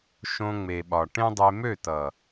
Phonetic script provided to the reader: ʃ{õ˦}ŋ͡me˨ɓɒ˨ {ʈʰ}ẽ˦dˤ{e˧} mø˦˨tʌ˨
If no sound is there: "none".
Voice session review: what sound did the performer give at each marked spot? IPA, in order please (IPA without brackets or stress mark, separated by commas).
õ˧, ʈ, e˧